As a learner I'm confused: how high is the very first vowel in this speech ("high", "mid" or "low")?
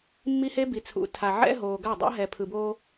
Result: high